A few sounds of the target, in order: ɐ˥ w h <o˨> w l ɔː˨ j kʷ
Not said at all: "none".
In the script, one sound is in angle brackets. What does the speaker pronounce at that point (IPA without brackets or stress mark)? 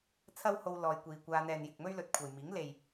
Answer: o˧